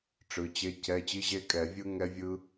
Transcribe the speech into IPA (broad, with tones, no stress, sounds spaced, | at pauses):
ʈ͡ʂ ɯ˩˧˩ t͡ɕ e˧˥˧ cʰ ɛ˧˥˧ t͡ɕ i˧˥˧ ʑ e˦˥ kʼ ɛ˧˩˧ vʲ ɯ˦˥ ŋ ɛ˦˥ vʲ ɯ˦˥